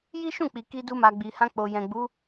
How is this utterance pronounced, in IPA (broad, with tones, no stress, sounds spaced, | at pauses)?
j i˦ ʃ ũ˦˨ k͡p i˨ k i˧ d u˧ m a˨ ɡ͡b i˨ h ã˧ k͡p o˨ j ɛ̃˨ ɡ͡b u˨˦